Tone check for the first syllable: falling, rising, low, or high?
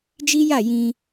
high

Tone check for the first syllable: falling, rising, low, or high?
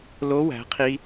rising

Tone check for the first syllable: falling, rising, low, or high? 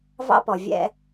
high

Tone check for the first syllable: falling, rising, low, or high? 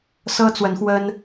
high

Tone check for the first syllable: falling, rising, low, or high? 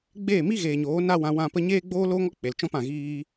falling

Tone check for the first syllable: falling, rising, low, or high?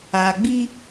low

